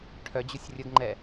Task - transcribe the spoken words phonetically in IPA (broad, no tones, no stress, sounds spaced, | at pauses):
ʈʰ œ d͡ʑ u sʲ rʲ ə ɡ ŋ͡ǃ ɛ